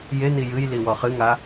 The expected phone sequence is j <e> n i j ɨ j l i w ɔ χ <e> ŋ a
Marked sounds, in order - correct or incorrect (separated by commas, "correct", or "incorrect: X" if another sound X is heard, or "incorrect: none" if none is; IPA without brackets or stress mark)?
correct, incorrect: ɨ